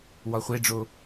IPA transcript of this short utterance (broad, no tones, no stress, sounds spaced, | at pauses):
w ɒ χʷ e ɖ͡ʐ o